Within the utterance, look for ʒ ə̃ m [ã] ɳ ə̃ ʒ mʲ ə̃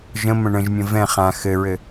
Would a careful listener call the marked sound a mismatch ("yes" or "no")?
yes